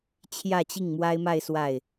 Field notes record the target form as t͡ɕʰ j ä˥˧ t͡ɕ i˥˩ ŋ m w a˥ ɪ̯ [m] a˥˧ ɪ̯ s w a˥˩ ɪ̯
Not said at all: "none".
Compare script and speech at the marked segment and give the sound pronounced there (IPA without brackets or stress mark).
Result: m